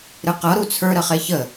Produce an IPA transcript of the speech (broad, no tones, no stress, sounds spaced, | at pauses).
ɾ ɨ q ɤ ɾ u t͡sʰ ə˞ ɾ ə χ e ç ə